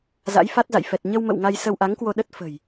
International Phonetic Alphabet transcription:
za̰˧˥jfa˦˥t̚za̰˧˨j fɛ˨˩t̚ ɲə˧wmə̰˧˨w ŋa˧jsə˧wʔa˨˦ŋkwo˧ ɗə˦˥t̚fə̤˨˩j

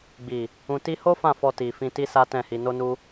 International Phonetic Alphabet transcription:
ɡ͡bi˨ | ũ˨ti˧ho˦ fã˦˨fɔ˧ ti˨fĩ˧ ti˦sa˦tɛ̃˦˨hi˧ no˦nu˦

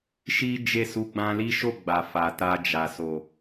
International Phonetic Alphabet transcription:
ʃi˦d͡ʒe˦˨su˧ ɡ͡bã˧li˦ ʃo˦˨ɡ͡ba˨ fa˨ta˧d͡ʒa˨ so˨

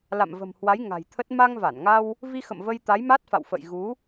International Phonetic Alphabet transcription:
la̰˧˨mvə̤˨˩mhwa˨˦j ŋa̤˨˩jt̪ʰə˦˥t̚ ma˧ŋva˧˩nŋa˧w | vi˧xə̰˧˨m və˧j t̪a˨˦jma˦˥t̚fa̰˧˨wfə̰˧˨j ɣu˨˦

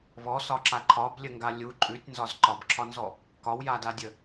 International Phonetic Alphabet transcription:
βɔsɒǁa ǃʰɒblʲəŋɡa lʲu ǃʼʉtʲnzɒz ǃɒbǁʰɒnzɔ | kɒwjadadʲə

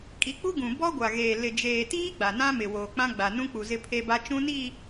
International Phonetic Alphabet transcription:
kʼi˨˦k͡pu˦ɡũ˨ bɔ˦ɡʷa˨ɣeː˨ lɪ˨d͡ʒeː˨tiː˦ ɡ͡ba˨nã˦mɪ˨ woː˨k͡pã˦ɡ͡ba˨ nũ˦k͡pu˨ zɪ˦pʰe˦ba˦ t͡ʃũ˦ni˦˨

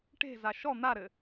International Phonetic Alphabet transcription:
ʈe̤za ʃɔ n̪aɾɘ

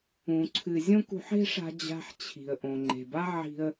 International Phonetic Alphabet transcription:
ũ˧ǀʰɨ˧ zʲõ˦kṳ˧ħe̤˦ʂa̤˧ d͡ʑa̤˧ħt͡ɕʰi̤˨ə̯ ʔõ˨ŋ͡ǃe̤˨ba˦ ʕi̤˧ə̯

